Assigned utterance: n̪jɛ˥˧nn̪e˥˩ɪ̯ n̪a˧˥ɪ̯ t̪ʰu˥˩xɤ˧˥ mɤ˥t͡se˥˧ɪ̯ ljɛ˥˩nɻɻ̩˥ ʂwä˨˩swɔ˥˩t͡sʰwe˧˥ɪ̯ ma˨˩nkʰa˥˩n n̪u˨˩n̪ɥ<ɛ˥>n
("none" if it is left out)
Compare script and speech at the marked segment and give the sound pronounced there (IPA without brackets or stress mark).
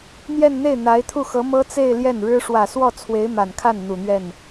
ɛ˥˩